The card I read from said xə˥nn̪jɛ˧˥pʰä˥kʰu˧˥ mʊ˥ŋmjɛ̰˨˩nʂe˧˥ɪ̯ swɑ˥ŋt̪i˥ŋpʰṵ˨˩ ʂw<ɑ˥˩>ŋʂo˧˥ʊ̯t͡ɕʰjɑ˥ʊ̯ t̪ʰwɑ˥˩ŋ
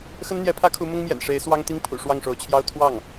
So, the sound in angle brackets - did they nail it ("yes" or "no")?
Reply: yes